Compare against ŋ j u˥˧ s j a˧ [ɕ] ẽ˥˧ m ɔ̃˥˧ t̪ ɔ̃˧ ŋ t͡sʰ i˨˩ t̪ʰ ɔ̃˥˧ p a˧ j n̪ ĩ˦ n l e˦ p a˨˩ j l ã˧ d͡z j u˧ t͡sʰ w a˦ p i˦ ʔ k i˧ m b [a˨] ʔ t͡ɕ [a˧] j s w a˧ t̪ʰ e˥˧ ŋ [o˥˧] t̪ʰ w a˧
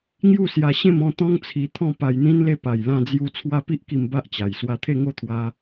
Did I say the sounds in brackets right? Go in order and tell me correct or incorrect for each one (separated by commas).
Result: correct, incorrect, incorrect, correct